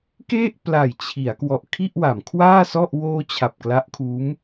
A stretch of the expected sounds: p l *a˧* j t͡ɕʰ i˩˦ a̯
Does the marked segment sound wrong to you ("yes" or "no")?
yes